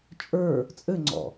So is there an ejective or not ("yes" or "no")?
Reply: yes